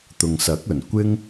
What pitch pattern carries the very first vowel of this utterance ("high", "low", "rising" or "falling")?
low